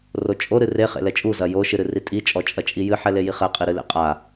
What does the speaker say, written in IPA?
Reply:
r o t͡ʃʼ o ɾ ɨ r e χ ḛ l ɛ t͡ʃʼ u z ɐ j o ʃ ɨ ɾ ɨ r i tʼ i t͡ʃʼ ɔ t͡ʃʼ ɐ t͡ʃʼ i j ɨ ħ ɛ l e j i χ ɛ qʼ i ɾ ɨ l ḛ qʼ a

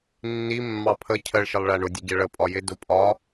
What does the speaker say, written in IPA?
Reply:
nː i mː ɑ pʰ ə cʰ ɜ ɭ ʃ ɪ lˠ ɭ æ ɳ ʊ dʲ ə ɟ ɛ ɭ ə pʼ ɒ j ɪ d ʊ pʼ ɒ

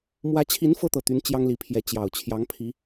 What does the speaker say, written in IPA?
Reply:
m w ä˧˥ t͡ɕʰ i˧˥ n f ɤ˥ t̪ ɤ˨˩ t̪ y˧˥ n t͡ɕ j ɑ˥ ŋ l i˧˥ pʰ j ɛ˧˥ t͡ɕ j ɑ˨˩ ʊ̯ t͡ɕʰ j ɑ˧˥ ŋ pʰ i˧˥

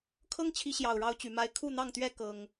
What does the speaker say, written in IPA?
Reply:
kʰ ɤ˦ ŋ t͡ɕʰ i˨˦ ɕ j ɑ˨˩ ʊ̯ ɻ ɑ˦ ʊ̯ t͡ɕ y˨˦ m a˦ ɪ̯ kʰ u˥˨ n̪ ɑ˥˨ ŋ t̪ ɥ ɛ˦ k ɤ˦ ŋ

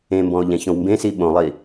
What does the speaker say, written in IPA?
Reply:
ẽ m b ɔ̃ o̯ ʎ ɛ̃ ç õ w m b ẽ s i ɓ õ lˠ i

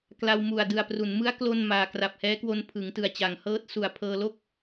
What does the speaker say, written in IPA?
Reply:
k l a˧ w m u˨˩ a̯ d ɯ˨˩ a̯ p r u˩˦ n m ɯ˦˥ a̯ k l o˥˩ n m aː˧ k r a˨˩ p̚ h ɛː˦˥ k w o˧ n pʰ ɯ˩˦ ŋ t ɯ˨˩ a̯ t͡ɕ a˩˦ ŋ h ɤː˦˥ t̚ s u˨˩ a̯ pʰ ɤː˧ l o˥˩ k̚

